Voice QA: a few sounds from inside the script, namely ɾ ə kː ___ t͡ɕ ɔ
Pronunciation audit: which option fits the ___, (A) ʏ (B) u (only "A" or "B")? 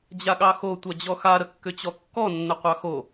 A